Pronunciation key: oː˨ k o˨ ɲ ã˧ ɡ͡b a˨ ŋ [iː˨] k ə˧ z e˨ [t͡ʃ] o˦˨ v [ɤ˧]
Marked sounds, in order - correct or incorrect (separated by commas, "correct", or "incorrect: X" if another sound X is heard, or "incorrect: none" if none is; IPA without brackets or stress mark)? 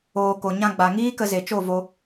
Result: incorrect: iː˦, correct, incorrect: o˧